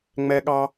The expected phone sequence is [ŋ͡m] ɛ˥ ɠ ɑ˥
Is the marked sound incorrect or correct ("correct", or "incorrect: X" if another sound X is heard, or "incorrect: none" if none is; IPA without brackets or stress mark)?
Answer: correct